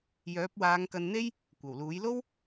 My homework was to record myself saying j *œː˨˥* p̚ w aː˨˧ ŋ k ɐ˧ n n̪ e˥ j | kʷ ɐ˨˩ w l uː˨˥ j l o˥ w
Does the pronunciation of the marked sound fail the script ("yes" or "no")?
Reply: no